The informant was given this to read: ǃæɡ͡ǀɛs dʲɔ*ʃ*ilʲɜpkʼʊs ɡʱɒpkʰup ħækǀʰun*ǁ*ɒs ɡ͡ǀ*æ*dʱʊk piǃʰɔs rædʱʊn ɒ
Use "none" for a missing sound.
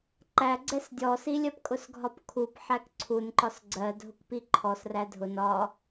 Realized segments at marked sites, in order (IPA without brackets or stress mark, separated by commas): s, ǃ, ɜ